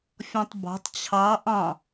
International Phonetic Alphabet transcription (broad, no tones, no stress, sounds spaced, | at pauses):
fʲ ɔ̃ tˤ b ɑ̤ tˤ t͡ɕʰ ɑ ʔ ɑ̃